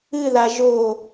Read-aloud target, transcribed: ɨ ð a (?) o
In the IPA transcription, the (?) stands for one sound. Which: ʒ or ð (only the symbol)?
ʒ